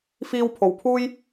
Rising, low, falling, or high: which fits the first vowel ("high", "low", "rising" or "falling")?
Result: high